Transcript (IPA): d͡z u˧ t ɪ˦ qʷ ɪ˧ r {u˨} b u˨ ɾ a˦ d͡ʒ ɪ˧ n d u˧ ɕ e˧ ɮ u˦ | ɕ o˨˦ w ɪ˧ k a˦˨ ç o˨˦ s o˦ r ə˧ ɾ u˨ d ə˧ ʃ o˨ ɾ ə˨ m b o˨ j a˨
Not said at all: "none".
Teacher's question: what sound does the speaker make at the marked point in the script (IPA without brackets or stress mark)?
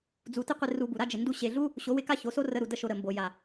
u˧